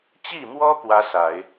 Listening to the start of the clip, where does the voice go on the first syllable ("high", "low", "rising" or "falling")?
falling